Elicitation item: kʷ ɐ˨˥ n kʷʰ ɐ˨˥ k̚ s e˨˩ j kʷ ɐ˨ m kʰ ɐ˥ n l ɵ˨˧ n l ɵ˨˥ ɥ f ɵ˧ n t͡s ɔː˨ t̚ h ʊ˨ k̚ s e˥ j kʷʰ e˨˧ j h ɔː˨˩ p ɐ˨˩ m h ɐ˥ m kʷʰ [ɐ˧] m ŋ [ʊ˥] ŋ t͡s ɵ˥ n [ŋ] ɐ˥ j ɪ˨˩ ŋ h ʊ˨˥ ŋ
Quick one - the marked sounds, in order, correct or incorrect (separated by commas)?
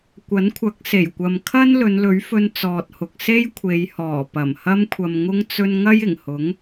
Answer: correct, correct, correct